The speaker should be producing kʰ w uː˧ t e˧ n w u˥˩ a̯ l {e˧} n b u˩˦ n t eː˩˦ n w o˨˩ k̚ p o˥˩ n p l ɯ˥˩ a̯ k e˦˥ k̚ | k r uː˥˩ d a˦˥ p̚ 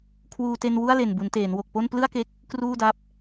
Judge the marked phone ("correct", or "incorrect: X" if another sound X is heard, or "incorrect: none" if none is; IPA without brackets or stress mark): incorrect: e˨˩